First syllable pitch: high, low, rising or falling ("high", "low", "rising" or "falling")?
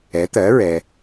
rising